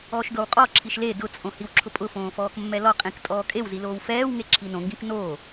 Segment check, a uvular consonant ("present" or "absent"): present